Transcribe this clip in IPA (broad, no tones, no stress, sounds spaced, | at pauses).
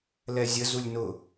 l ɛ zʲ ə z u lʲ n ʊ